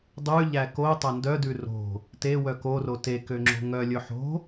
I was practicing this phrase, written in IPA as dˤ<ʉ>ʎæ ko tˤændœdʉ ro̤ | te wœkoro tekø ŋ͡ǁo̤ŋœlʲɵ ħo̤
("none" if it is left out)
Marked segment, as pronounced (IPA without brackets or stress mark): ʉ